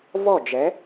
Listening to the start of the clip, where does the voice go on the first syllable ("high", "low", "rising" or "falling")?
falling